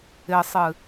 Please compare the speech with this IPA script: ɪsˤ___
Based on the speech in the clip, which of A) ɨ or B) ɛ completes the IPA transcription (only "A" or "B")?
A